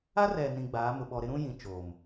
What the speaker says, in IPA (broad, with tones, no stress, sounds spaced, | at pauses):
a˦ r ɛ˨ n ĩ˨ ɡ͡b aː˨˦ m ʊ˨ ɓ ɔ˨ ɾ ɪ˦ ɾ ũ˦ j ĩ˨ t͡ʃ oː˨ m